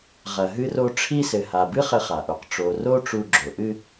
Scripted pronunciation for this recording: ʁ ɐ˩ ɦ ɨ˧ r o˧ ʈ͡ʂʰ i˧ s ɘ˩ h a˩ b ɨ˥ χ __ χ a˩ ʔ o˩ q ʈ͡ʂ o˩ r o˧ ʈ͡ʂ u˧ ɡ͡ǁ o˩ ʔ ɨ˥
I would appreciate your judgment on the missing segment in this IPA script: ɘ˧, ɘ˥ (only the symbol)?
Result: ɘ˧